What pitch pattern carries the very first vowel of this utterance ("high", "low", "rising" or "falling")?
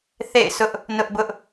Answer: falling